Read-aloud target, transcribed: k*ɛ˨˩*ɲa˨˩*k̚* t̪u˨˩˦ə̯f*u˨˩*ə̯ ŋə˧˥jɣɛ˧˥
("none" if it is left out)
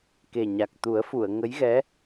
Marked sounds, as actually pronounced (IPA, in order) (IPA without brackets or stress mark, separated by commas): e˨˩, k̚, u˨˩˨